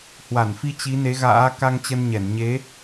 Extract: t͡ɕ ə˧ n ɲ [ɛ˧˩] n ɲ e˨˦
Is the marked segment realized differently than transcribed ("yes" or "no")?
no